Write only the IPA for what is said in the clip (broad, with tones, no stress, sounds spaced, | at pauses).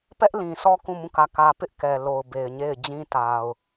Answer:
p ɛ˦ ʔ l ĩ˨ sʰ ɔ˦ k ũ˦˨ m ũ˦˨ k ä˦˨ k ä˦ p ɪ˦ ʔ k ɛ˨ l o˨ ʊ̯ b e˨ ɪ̯ ɲ e˦˨ ɪ̯ d͡ʑ ĩ˦ t a˨ ʊ̯